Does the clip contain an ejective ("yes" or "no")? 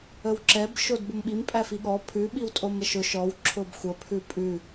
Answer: yes